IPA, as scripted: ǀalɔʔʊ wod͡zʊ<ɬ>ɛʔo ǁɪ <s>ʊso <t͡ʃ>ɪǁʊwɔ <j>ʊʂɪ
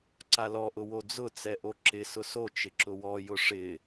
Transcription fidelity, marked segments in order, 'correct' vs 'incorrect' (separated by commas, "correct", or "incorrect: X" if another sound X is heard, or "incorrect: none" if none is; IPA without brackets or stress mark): incorrect: t͡s, correct, correct, correct